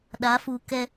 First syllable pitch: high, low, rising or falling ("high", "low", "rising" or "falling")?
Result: rising